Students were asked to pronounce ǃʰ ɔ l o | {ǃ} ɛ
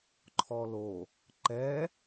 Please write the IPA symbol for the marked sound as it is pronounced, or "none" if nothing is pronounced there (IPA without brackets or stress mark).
ǃ